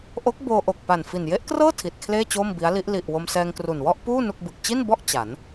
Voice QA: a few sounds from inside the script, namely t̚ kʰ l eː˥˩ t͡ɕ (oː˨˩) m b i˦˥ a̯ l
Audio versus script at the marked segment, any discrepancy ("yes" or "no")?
yes